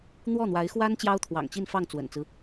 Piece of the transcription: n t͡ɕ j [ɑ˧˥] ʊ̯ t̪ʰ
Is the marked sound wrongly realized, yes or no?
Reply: yes